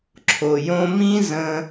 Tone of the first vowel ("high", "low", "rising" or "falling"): low